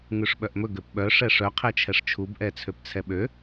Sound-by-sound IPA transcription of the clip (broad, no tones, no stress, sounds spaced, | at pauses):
ŋ ʉ ʂ ɓ œ ʔ m ɵ ɡ ø p ɓ œ ʂ ɛ ʂ œ qʰ ɛ t͡ʃʰ ɛ ʂ t͡ʃʰ u b ʔ ɛ t͡sʰ ø p t͡sʰ ɛ ɓ ø